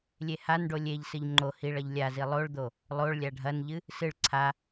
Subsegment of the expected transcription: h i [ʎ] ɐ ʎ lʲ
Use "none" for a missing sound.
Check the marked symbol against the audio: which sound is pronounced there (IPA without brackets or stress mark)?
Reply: ɭ